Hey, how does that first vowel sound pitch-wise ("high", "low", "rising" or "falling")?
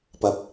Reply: low